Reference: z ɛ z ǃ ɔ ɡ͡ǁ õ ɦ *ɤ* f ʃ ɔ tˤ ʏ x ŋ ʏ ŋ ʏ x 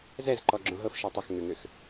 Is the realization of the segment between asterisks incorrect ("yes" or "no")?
no